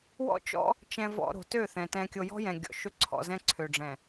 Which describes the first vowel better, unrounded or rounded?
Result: rounded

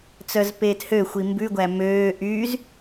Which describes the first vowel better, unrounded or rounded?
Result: rounded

